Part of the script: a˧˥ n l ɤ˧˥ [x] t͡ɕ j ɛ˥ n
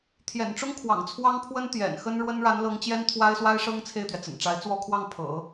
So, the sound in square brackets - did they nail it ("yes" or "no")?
no